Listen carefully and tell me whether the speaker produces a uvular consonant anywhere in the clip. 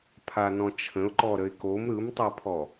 no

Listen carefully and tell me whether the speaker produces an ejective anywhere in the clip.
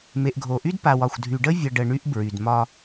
no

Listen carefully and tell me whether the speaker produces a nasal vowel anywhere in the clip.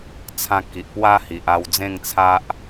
yes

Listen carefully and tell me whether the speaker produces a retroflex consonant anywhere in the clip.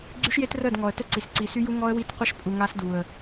no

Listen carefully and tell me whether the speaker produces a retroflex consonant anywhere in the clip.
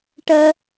yes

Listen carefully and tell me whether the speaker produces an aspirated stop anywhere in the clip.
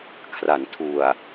yes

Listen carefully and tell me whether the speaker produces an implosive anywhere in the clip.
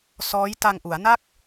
no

